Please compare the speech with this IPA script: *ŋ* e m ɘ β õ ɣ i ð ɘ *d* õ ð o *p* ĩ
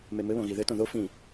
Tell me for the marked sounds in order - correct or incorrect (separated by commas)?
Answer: incorrect, incorrect, incorrect